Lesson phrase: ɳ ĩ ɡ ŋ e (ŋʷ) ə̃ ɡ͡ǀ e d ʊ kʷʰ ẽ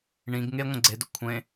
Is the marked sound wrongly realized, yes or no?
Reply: no